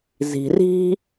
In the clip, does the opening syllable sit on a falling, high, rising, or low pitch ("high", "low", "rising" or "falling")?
low